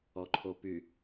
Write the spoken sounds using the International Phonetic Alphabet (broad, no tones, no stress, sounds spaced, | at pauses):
ɔ ǃʰ o p y